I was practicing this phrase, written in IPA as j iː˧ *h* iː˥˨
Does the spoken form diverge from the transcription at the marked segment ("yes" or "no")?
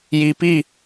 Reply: yes